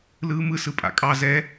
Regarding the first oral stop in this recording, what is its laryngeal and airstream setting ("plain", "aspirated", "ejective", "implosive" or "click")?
ejective